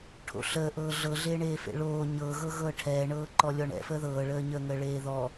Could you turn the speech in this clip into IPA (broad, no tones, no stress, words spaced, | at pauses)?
ʈʰo̰ɬəːʔɤː ɮɤɮeːɳeːfḛ ɭoː ɲɤɣɤ ɣɤːʈʰɛːɳɤːǃɔ lʲɔɳɛ̰fəː ðɤːɭəːɲəːŋəː ɭeːðɔ